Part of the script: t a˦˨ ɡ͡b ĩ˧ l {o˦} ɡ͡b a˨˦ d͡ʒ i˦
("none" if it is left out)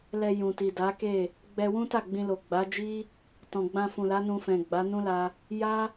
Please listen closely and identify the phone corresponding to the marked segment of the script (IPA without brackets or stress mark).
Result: o˨